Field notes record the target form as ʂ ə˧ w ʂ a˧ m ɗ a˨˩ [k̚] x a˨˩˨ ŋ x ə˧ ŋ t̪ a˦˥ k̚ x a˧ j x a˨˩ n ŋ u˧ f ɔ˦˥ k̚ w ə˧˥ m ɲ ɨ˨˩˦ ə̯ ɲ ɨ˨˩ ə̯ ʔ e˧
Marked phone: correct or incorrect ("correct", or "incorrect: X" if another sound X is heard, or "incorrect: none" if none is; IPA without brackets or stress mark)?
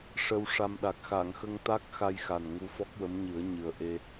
correct